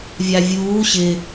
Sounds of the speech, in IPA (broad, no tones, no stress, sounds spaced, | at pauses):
vʲ a vʲ uː ɕ ɪ